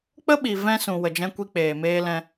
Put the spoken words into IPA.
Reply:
k͡p ə˦ ɓ i˨ v ɛ̃˧ s ũ˨ w ə˨ d͡ʒ ɛ̃˧ kʷ i˧ k͡p eː˨ m eː˧ l ɛ̃˧

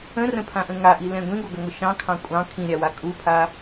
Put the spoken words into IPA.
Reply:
ə̃ r ə̃ pʰ ã ʔ ə̃ ŋ a ʔ i l ɛ̃ ɡʷ ĩ ɡʷ ɐ ɡ ɐ ŋʷ ə ʃ ɑ̃ kʰ ɑ̃ kʷʼ ɑ̃ kʰ ĩ ɾʲ a w a kʼ u pʰ a

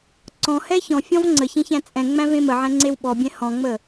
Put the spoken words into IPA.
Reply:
ǀ ɔ̃ h ɛ ç ɔ̃ fʲ ɔ̃ v ŋ͡ǀ ə ç ẽ ç æ̃ t͡sʼ ɛ̃ ŋ͡m æ̃ v ẽ m ə ʕ ɛ̃ ŋ͡ǀ e w ɓ ɔ bʲ ɛ̃ h ɔ̃ ŋ͡m ə

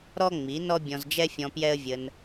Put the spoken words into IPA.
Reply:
ɾ ɔ˥ ŋ͡m i˩˥ n ɔ˥ bʲ ɔ̃˧ z d͡ʒ ɛ˥ fʲ ɔ̃˧ p j ɛ˥ ə̯ vʲ ə˧ n

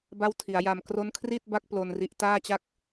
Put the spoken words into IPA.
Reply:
b a˥˩ w tʰ i˩˦ a̯ j a˧ m k r o˦˥ n kʰ r i˥˩ t̚ b a˦˥ k̚ p l o˧ n r i˦˥ ʔ t aː˥˩ t͡ɕ a˥˩ k̚

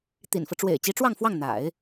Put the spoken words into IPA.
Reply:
t̪ ḭ˨˩ n f ɤ˦ ʈ͡ʂ w ḛ˨˩ ɪ̯ t͡ɕ i˧˥ ʈ͡ʂ w ɑ˥˧ ŋ f w ɑ˥˩ ŋ n̪ a̰˨˩˦ ɪ̯

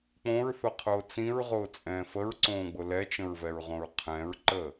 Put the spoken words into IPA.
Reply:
k͡p õ ɹ θ ʊ qʰ ʊː t͡s ĩ ɹ ʁ ʊː t͡sʼ ɛ̃ː f ə ɹ ǀ õː ɡ͡b ʊ l ɛ t͡ʃ ə̃ ɹ v ɛ ɹ ʁ õ ɹ qʰ ɛ̃ ɹ ǃ ə

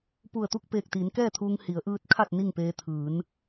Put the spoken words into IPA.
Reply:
p u˧˩ ə̯ t̪ u˥˨ k̚ p eː˧˩ k̚ t̪ iː˩˧ n k ɛː˥˨ t̪ʰ uː˧ ŋ h i˩˧ ə̯ ʔ ɯː˧˥ t̚ kʰ a˥˨ t̚ n i˥˨ ŋ p eː˧ t̪ʰ ɯː˩˧ n

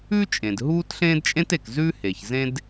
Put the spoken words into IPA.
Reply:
ʉ˥ t͡ʃʼ ẽ˩ d ɦ uː˥ t ɬ ẽː˥ d t͡ʃʼ ẽ˥ t e˩ k z ʉ˥ h e˩ ç z ẽ˥ d

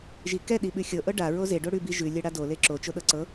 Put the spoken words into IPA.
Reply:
ʒ i k ɛ ɗ i ɓ ʉ xʲ ɤ ʔ ɤ ɖ a ɹ o z e ɖ o ɽ ʉ b i ʒ ʉ lʲ ɛ ɽ a d o l e ǁ o t͡ʃ o ɗ ɤ ǀ ɤ

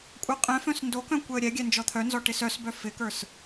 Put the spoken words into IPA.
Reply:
kʷʼ œ qʼ ɛ̃ f œ̃ s n d o k œ̃ kʷ ɛ ə̯ ɾʲ ɛ ɡʲ ɛ n d͡ʒ ɔ t̪ʰ œ n z ɔ ʈ ɪ s œ s b œ f ɪ k ə˞ s

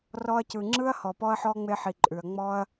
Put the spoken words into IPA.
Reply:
r ɔ˧ ɐ̯ c ɯ˨ ŋ͡ǁ ɯ˦ ɐ̯ h ɔ˨ p ɔ˧ ɐ̯ ħ ɔ˧ ŋ͡m e˧ ħ i˨ ǃʼ ʉ˨ ɐ̯ ŋ͡m ɔ˧ ɐ̯

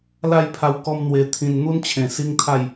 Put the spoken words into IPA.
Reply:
l a˥˧ j pʰ a˧ w k ɔ˦ m n̪ w e˧ t̪ʰ ĩ˧ n n̪ u˦ n t͡ɕʰ ẽ˨˩ s i˦ ŋ t̪ʰ a˥˧ j

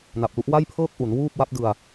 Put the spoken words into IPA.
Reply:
n a˨˩ p̚ l u˦˥ ʔ w a˥˩ j pʰ ɤː˥˩ k̚ ʔ u˩˦ n w uː˥˩ p̚ w a˦˥ p̚ d ɯ˧ a̯

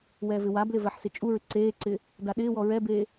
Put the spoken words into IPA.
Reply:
w ɛː v ɪ w a b l ɪ v ɛ ħ s ɪ t͡ʃʼ u ɹ ɪ ǀ eː ǀ ɪː | d a ɗ ɪː w ɔ ɹ ɛ b eː

